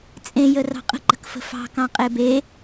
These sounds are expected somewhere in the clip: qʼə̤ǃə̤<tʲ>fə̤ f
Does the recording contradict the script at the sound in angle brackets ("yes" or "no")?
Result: yes